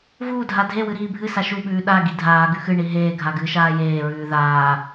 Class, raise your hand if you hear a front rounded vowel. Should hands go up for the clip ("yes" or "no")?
no